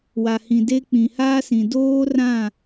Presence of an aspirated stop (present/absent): absent